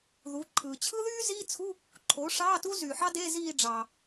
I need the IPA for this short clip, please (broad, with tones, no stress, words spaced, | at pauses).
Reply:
ðu˩˥ ǃʰɯː˩ t͡ɕʰɯ˥ðyː˥ziː˧˥˧t͡sʰu˧˥˧ | ǃʰoː˩˥ʂɑː˧˥˧ tu˥zyː˩ħɑ˥de˧˥˧ ziː˦˨ɖ͡ʐɑː˩